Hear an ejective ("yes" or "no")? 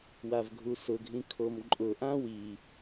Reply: yes